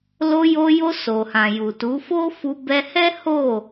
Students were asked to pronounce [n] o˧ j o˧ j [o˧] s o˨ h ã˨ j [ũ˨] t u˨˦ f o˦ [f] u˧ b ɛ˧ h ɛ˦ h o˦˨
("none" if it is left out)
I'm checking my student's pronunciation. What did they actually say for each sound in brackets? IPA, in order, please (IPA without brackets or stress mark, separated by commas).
l, o˧, u˨, f